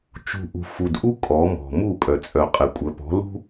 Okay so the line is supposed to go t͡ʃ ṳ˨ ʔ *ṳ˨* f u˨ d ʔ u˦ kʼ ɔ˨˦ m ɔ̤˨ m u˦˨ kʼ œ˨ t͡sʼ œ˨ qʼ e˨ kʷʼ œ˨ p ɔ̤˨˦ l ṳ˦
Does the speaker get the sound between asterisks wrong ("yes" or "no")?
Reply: no